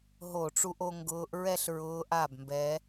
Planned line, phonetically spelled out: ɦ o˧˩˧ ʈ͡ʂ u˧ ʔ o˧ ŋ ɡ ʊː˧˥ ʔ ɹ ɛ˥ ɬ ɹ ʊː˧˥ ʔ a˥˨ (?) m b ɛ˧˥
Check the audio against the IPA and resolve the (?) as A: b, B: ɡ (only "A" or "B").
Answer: A